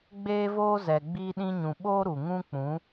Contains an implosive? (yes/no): yes